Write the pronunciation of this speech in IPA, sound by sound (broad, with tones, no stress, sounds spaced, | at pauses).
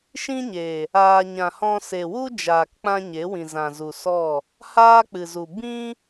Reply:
ʃ ĩ˦ ɲ e˨ | aː˧ ɲ ã˨ h ɔ̃˧ s e˨ w u˦ d͡ʒ aː˨ k k͡p ã˦ ɲ e˨˦ w ĩ˨ z ã˨ z u˨ s ɔ˦˨ | h aː˦ k͡p ɨ˨ z u˨ b ĩ˦